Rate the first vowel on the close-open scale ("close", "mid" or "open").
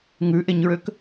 close